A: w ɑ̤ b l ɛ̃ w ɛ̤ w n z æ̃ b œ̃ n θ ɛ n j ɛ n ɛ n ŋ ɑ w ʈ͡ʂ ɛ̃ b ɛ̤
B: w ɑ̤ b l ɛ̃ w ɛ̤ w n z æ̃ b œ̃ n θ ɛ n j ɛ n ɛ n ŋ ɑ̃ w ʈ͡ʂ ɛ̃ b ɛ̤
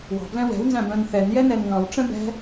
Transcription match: B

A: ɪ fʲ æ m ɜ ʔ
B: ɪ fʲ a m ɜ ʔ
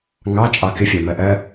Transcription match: A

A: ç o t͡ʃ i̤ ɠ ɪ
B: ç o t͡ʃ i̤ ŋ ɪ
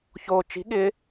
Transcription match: A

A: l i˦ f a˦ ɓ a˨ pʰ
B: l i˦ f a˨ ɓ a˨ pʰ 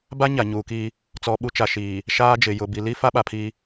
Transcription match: A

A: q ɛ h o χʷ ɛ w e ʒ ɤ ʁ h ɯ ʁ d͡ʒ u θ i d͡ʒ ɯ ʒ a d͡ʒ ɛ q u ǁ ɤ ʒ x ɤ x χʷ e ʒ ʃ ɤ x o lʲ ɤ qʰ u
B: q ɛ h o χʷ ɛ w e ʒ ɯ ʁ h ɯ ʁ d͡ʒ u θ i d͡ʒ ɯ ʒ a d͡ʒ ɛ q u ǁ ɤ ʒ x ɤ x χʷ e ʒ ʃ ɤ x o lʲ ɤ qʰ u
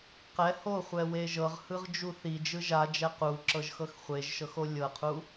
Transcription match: A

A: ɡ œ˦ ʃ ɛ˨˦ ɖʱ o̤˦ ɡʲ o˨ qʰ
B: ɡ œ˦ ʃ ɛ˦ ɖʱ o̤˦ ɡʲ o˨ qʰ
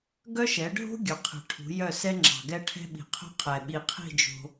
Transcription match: A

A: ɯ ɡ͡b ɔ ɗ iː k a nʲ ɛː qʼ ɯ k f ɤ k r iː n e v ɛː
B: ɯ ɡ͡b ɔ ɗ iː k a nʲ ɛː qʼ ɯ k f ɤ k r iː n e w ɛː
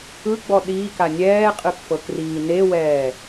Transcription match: B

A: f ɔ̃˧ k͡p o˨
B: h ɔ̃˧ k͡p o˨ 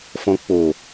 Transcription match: A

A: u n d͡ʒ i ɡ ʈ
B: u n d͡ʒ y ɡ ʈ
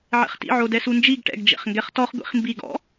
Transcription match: A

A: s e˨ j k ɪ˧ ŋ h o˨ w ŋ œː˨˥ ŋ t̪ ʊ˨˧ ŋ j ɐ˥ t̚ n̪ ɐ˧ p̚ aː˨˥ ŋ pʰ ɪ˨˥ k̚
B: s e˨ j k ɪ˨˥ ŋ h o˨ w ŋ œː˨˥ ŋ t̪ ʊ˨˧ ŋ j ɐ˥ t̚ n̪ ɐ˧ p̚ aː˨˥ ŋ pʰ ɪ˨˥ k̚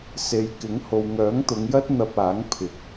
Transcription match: B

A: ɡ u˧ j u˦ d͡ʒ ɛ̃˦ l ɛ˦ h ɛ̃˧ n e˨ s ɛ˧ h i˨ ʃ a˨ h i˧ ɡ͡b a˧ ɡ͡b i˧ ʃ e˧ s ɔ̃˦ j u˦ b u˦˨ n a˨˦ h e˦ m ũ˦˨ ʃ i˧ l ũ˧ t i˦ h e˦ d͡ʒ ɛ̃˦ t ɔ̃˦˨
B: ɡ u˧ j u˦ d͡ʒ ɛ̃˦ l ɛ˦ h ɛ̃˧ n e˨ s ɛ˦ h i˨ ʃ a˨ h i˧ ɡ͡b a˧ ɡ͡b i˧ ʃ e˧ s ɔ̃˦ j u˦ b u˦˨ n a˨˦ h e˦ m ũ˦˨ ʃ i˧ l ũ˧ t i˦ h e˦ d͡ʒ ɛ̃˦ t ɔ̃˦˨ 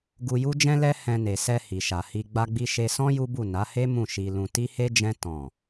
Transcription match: A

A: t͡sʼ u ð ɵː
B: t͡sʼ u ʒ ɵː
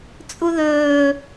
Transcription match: A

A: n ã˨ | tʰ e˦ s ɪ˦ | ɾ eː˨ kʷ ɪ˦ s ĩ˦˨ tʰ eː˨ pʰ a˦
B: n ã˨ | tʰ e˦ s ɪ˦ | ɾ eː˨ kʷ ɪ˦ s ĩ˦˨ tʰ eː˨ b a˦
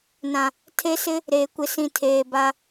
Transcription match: B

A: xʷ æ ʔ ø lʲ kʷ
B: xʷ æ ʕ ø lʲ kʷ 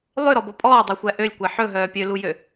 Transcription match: A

